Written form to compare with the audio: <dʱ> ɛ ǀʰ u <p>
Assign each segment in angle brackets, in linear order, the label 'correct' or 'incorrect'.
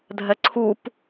correct, correct

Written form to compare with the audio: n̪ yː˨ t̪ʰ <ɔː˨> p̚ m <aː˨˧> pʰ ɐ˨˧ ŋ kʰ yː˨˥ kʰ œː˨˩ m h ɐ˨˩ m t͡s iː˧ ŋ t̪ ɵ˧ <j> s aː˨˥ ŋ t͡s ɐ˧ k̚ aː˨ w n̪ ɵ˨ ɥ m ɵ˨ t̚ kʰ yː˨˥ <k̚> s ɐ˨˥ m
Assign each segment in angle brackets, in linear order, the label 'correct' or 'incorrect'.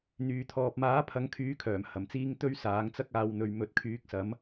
correct, incorrect: aː˨˥, incorrect: ɥ, correct

